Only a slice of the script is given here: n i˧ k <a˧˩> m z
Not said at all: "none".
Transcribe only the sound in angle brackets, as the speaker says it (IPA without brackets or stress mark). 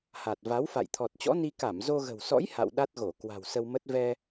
a˧˩